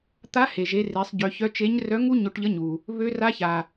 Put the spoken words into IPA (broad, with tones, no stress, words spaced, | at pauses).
t̪a˧˥he˩ʒe˩˧ re˩˧sˤɟø˩˧çœ˧˥ t͡ʃe˧˥ɲ rœ˧˥ŋu˥ ɲo˧ʈʎə˧˥ɲu˩ | βø˧˥ra˧˥ça˩